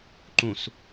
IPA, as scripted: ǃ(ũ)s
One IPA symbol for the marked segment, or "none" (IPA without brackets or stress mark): ũ